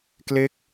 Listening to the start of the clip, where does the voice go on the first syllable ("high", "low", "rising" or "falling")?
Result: falling